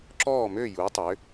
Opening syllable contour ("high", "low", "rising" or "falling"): falling